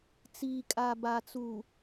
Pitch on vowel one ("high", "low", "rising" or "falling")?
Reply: low